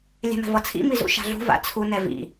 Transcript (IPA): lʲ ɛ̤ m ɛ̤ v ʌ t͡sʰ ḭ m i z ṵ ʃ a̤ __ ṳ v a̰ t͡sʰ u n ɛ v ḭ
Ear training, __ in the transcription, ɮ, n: ɮ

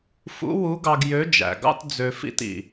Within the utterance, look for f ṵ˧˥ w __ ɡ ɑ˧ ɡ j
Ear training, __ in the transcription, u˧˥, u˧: u˧˥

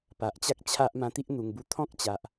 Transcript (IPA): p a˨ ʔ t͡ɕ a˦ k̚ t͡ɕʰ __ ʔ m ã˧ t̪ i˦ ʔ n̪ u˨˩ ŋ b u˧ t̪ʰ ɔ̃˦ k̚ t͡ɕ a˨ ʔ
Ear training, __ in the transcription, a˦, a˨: a˦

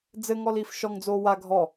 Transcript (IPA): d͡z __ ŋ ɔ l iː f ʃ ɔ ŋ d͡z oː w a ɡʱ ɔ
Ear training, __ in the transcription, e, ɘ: ɘ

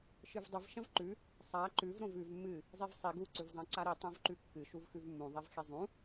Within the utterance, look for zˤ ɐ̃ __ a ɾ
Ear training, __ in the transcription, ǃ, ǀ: ǀ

